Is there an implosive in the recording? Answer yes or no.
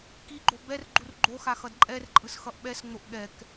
yes